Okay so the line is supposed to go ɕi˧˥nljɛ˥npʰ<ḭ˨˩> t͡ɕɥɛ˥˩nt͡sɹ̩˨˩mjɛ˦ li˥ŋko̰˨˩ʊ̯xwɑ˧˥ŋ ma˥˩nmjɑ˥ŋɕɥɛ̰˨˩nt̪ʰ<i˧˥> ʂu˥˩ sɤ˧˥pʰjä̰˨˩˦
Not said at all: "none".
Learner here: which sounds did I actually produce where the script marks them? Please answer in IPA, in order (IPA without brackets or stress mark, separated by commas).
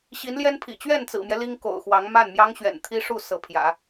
ḭ˨˩, i˥